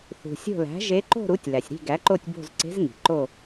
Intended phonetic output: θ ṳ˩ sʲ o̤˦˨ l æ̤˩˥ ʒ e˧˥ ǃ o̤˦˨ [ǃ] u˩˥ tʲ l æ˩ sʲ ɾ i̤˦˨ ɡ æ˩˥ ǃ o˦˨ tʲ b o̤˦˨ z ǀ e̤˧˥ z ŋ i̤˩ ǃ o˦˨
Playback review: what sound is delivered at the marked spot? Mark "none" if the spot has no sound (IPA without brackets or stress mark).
ɾ